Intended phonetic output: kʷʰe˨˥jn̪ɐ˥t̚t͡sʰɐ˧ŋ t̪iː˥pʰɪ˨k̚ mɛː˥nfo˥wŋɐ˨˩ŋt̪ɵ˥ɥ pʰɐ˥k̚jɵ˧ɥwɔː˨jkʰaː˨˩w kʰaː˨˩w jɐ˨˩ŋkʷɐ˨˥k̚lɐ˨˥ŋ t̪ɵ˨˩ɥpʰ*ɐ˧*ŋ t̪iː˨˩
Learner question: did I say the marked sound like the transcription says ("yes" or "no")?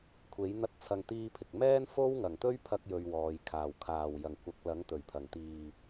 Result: no